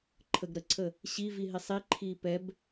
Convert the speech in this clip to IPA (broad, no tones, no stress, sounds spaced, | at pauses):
ǃʰ ə ɡ ɾ ə ǀʰ ə | ɕ i v i ɦ i sˤ i ǃʰ iː p ɛ b